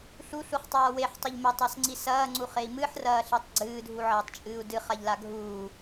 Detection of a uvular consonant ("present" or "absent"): present